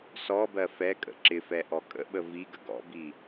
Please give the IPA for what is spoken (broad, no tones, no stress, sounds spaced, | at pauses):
s ɔ b ɜ f ɛ kʼ ə̰ ǁ ɪ f ɛ ʔ ɔ kʼ ə̰ ɓ ə v i ɡ ə ɡ ɔ̰ b i